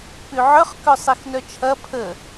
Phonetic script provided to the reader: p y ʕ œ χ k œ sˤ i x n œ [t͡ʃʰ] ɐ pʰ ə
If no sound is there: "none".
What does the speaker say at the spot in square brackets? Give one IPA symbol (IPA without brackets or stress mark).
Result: t͡ʃʰ